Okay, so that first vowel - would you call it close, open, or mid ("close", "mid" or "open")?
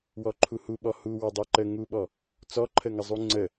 mid